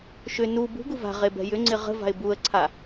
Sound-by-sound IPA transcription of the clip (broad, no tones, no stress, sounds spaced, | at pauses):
ʃ ʏ n u b ṳ ɡ u v a̤ ʁ e b ɛ̤ j ʏ ŋ͡ǀ ɪ ʁ ə̤ v a̤ ɪ̯ b u ə̯ ǀʰ a